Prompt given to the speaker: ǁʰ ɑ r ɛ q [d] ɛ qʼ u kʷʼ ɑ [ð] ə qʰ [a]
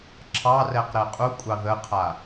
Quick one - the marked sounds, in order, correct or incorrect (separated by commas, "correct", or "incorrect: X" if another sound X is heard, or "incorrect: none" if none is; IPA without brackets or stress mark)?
incorrect: ɾ, correct, correct